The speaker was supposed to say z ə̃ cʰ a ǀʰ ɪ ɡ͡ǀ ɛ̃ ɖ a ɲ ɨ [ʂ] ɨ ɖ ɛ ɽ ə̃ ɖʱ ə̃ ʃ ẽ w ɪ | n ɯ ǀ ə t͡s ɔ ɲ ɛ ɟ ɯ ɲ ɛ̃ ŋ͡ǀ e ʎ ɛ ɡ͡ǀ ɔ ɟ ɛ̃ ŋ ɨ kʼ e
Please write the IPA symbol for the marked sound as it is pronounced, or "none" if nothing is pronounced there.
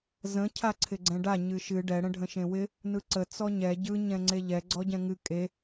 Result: ʃ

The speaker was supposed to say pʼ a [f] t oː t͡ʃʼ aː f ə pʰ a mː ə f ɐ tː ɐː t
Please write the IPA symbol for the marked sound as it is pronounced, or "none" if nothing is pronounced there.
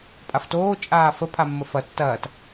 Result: f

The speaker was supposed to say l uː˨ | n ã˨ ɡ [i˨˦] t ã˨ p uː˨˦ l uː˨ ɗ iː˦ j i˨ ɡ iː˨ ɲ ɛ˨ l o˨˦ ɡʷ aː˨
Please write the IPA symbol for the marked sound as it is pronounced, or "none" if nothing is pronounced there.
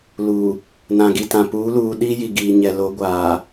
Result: i˨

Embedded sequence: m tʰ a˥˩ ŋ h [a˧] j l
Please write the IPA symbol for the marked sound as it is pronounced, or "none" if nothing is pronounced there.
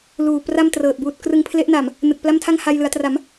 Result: a˧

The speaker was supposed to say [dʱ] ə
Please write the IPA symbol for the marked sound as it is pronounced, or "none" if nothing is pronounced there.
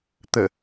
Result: t̪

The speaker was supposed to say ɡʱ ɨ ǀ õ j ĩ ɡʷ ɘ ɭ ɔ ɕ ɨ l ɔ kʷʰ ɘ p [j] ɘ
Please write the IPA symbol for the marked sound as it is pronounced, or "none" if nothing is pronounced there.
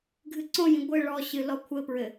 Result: ɹ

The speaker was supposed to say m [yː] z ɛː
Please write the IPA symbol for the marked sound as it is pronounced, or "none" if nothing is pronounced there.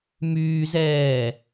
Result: yː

